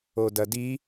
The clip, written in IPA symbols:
o d ɐ d i

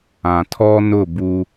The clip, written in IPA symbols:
ã˨ tʰ ɔ˦ n ʊ˦˨ b u˦

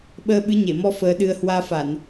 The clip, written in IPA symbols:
ɓ əː˧ ɓ ɨ˨˦ ɲ e˧˩ m ɔ˧ f əː˧ ɗ ɨ˧ ə̯ h w aː˧ f a˧˩˨ n

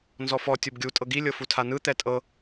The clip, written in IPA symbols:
n z ɔ f ɔ tʲ o b ɡʲ u tʼ ɤ ɡ i lʲ ɤ f u tʰ a n ɯ t̪ ɛ tʼ ɤ

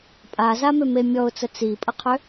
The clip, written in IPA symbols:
pʼ a z a m ø m e mʲ ɔ ʊ̯ t͡s ə t͡s i pʼ ə qʰ ø

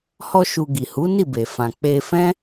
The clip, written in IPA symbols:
h ɔ˦ ʃ u˧ ɡ i˨ h u˨˦ n i˦˨ b e˨ f ã˨ k͡p e˧ f ɛ̃˦

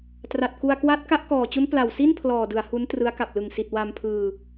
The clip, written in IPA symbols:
t r a˨˩ t̚ k u˧ a̯ k w a˦˥ t̚ k a˦˥ ʔ k ɔː˨˩ t͡ɕ u˦˥ n p l a˨˩ w s i˥˩ n pʰ l ɔː˨˩ d ɯ˩˦ a̯ h u˦˥ n t r ɯ˦˥ a̯ k a˨˩ p̚ l ɯ˨˩ ŋ s i˨˩ t̚ w a˧ m pʰ ɯː˧

